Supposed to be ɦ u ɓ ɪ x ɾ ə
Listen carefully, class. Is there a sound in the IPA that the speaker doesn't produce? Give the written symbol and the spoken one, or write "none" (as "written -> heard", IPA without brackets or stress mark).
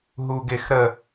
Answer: ɓ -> ɡ